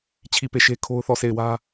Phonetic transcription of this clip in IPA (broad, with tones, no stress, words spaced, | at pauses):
t͡ɕʰi˦˨pe˦˨ʃe˦ kʰo˦ʊ̯θɔ˦˨ se˦˨ɪ̯wä˦